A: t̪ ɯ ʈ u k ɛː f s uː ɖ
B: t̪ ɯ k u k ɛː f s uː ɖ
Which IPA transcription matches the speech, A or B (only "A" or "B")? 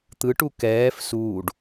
A